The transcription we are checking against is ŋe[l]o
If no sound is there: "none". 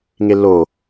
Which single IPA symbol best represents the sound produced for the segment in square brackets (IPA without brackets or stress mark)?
l